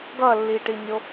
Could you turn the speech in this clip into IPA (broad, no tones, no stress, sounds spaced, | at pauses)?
ɡ ʌ lː i ʈ i nʲ o